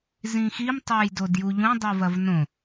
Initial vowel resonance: nasal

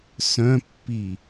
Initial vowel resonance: nasal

